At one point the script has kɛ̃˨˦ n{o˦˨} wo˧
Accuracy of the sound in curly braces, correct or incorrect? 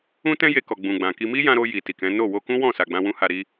correct